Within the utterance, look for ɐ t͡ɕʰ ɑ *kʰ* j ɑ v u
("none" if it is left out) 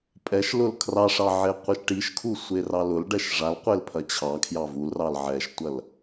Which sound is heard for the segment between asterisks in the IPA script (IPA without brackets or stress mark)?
kʰ